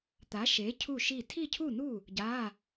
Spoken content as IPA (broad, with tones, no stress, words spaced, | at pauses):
t̪a˨˥ʃe˨˥ cʰu˥˨ʃi˥˨ tʰi˥˨cʰu˥˨nu˥˨ | ɟa˧˥˧